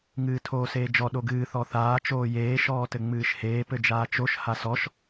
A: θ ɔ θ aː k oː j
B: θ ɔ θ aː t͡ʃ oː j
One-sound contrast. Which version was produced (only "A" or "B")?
B